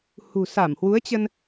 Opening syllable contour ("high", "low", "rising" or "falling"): low